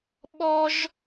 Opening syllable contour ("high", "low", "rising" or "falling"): high